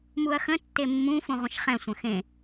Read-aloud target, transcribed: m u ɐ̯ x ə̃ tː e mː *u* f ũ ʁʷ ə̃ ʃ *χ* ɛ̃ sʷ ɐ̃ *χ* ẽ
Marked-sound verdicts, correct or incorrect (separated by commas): incorrect, correct, incorrect